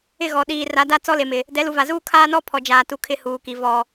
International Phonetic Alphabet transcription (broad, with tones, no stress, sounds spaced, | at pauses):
ɪ˦˨ ɣ ɔ˨ ɗ iː˨ r a˨˦ d a˦ t͡s ɔ˦ l e˨ m ɪ˨ | d ɛ˨˦ l u˨ v a˨ z uː˦ kʰ aː˦ n ɔ˦ pʰ ɔ˨ d͡ʒ aː˨ t u˨ kʰ ɪ˦ h uː˨ k i˨ v ɔ˨